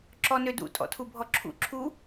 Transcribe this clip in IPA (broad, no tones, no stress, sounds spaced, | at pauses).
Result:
ǁ ɔ n ø d ṵ tʼ ɔ̰ tʰ u bʱ ɔ ǁʰ ṵ ǁʰ u